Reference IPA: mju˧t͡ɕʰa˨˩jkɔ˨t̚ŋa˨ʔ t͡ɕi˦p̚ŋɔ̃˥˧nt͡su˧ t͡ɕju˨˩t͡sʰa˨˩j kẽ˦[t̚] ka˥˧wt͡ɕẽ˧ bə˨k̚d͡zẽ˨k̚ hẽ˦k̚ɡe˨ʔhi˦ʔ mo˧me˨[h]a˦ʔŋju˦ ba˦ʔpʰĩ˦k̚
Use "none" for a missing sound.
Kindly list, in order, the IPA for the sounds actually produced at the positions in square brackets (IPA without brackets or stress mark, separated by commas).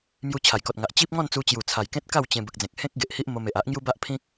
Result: t̚, ʔ